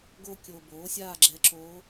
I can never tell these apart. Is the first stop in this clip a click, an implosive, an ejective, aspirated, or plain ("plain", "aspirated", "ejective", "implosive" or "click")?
plain